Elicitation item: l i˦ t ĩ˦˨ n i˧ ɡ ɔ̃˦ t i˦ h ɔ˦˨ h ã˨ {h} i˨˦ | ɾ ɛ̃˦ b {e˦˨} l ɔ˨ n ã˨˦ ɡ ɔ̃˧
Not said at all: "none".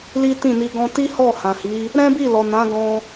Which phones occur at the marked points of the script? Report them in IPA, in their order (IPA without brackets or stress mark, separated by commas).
h, i˦˨